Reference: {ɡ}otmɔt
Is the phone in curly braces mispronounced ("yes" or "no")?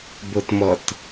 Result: yes